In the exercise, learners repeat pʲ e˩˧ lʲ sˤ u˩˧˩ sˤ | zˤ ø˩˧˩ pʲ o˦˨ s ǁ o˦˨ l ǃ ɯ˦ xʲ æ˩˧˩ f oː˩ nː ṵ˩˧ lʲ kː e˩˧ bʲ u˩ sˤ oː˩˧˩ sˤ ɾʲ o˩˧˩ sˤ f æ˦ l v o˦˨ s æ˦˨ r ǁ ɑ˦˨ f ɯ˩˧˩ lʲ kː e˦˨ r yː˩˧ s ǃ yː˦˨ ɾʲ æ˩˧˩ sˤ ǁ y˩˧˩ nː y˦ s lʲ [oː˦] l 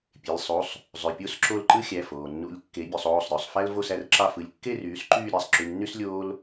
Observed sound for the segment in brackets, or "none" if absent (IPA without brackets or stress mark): oː˦